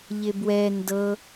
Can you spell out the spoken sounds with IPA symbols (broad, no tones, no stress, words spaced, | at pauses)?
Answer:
ʎɪbwɛ ndɤ